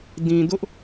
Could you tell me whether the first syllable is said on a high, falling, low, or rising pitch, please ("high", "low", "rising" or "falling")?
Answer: low